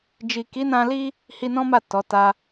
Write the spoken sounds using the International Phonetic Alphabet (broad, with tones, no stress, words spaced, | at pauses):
d͡ʒi˨ki˨˦nã˧li˦ | hi˧nɔ̃˦ma˦˨ tɔ˨˦ta˦